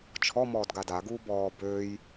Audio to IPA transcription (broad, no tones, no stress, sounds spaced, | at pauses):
t͡ʃʰ ɔ m ɔː d ɡ a d a ɡ uː b ɔː b øː j